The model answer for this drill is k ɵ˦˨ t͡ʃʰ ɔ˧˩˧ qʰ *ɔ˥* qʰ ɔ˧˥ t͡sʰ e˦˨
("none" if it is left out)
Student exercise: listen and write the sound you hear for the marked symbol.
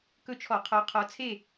ɔ˧˥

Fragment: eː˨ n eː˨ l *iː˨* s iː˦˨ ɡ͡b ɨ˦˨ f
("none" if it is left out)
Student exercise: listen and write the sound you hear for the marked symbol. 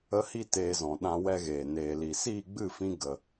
i˨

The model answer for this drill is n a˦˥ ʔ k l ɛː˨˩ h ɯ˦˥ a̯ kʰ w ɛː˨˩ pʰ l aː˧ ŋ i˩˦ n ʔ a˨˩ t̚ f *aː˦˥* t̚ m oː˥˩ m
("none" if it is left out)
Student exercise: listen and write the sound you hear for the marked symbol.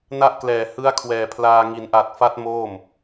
a˦˥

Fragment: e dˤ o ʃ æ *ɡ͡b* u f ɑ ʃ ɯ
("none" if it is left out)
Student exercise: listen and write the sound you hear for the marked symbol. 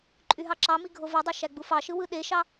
ɡ͡b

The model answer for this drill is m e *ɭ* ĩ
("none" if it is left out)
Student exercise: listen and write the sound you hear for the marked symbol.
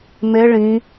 ɭ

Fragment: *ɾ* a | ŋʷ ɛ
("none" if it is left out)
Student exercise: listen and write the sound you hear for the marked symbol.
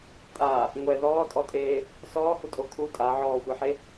tʼ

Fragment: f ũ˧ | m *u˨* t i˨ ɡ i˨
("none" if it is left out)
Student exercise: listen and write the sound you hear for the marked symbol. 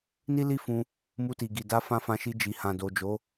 u˧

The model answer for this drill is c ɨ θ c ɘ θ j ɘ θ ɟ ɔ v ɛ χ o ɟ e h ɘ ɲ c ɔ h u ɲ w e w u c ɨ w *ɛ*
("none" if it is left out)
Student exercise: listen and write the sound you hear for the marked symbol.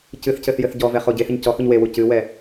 ɛ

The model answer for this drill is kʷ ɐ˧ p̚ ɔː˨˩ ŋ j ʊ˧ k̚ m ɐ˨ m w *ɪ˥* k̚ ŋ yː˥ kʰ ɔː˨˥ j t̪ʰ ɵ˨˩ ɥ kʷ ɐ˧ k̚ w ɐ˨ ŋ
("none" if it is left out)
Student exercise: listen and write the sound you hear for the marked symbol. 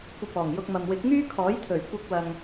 ɪ˨˥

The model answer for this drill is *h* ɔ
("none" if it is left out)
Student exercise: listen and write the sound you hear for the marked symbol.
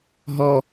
ɦ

